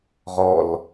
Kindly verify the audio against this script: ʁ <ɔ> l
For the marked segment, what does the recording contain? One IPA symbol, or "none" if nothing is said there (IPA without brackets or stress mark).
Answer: ɔ